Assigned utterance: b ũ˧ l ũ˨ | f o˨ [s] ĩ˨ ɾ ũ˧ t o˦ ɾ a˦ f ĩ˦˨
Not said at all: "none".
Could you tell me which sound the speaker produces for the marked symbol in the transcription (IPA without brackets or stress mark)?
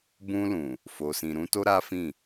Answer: s